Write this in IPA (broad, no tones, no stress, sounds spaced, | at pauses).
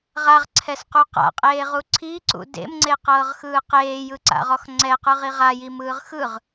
ʁ a ʁ ǀʰ ɛ s q u q a̰ qʼ eː ʁ u ǀʰ i ǀ ṵ d ḛ m ŋ͡ǀ e q ɤː ʁ x ɯː q eː j ɯ ǀ a̰ ʁ ɔ x ŋ͡ǀ ɛ q ɯ ʁ i ʁ a j i m ɯː ʁ x ɯ ʁ